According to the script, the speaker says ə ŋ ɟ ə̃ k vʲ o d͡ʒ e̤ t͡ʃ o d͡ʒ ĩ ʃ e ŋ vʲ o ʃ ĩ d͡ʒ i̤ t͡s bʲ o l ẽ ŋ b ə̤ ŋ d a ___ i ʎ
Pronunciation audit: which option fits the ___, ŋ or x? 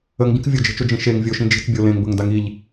ŋ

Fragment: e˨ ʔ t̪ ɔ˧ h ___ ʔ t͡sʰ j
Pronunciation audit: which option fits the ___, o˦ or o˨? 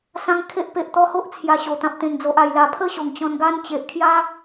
o˦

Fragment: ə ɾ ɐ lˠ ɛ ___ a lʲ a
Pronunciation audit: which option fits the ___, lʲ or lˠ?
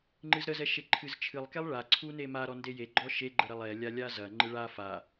lʲ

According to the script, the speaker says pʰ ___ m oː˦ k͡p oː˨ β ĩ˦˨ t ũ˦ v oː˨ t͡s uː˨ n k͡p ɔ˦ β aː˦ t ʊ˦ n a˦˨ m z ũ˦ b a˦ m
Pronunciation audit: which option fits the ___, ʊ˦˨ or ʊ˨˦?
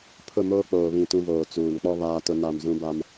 ʊ˦˨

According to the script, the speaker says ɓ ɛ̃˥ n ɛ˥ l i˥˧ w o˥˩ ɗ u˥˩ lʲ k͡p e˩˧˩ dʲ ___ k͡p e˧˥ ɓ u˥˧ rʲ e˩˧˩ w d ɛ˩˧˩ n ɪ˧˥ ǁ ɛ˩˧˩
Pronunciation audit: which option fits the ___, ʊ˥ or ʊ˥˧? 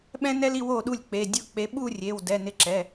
ʊ˥˧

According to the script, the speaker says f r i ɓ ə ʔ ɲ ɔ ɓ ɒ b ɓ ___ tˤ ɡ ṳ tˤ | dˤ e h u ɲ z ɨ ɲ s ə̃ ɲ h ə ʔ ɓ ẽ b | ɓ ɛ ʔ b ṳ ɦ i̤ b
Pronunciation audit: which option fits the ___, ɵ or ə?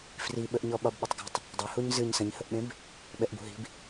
ə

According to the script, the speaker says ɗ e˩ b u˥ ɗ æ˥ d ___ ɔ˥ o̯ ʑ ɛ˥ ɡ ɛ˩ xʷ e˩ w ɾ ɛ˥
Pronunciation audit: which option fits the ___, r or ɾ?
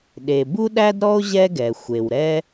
ɾ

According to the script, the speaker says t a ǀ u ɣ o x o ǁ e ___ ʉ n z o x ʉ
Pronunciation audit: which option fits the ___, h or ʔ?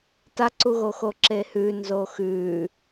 h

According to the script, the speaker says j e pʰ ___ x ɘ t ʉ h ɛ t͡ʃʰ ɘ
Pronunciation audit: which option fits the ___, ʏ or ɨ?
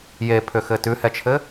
ʏ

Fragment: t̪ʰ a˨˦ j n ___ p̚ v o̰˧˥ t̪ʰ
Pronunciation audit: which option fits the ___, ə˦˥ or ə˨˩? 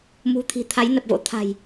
ə˨˩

